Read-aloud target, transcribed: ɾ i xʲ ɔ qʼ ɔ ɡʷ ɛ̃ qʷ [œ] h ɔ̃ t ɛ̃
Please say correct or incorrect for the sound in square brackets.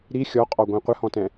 incorrect: ə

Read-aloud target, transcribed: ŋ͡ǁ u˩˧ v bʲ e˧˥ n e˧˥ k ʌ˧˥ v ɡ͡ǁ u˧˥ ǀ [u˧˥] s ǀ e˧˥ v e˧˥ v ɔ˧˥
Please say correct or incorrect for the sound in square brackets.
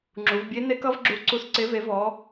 correct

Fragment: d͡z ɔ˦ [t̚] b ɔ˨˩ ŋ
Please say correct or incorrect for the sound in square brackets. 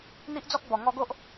incorrect: k̚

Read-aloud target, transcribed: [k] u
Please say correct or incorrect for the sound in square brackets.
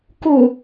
correct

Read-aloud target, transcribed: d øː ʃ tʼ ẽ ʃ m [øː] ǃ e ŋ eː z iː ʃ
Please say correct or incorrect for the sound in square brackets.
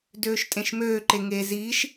correct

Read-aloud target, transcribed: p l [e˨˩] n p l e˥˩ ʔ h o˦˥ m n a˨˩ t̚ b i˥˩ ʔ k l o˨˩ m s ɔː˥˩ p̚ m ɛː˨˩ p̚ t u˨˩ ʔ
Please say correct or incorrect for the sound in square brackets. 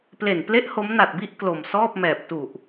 correct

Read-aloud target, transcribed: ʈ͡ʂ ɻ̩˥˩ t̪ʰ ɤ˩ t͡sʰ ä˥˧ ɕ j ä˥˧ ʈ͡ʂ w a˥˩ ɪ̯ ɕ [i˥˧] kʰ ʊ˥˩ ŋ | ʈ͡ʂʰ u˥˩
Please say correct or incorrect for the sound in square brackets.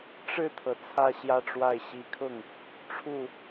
incorrect: i˧˥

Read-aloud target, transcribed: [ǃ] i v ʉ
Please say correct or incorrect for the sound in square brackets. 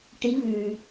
incorrect: ʈ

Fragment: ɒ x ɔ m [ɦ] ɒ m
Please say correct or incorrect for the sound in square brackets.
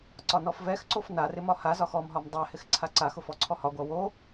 correct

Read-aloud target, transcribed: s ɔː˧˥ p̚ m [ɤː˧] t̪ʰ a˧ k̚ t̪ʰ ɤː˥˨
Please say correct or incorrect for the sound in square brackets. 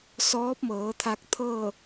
incorrect: ɤː˩˧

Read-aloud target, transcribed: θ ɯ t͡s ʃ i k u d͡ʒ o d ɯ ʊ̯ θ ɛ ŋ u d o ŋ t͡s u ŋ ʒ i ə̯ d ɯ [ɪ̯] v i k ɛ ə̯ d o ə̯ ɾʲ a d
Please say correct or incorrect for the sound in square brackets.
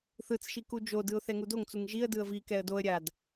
incorrect: ə̯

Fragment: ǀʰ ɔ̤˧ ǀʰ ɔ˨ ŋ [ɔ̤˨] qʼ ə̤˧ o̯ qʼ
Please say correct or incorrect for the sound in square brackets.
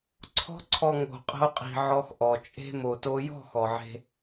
incorrect: o̤˨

